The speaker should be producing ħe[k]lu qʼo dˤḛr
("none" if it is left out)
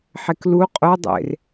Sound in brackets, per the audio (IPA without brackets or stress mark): k